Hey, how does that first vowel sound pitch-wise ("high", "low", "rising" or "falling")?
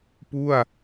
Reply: falling